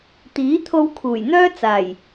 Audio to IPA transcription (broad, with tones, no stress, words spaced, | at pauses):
t̪iː˨˥t̪ʰo˧wkʰuː˨˩jn̪œː˥ t͡saː˨˩j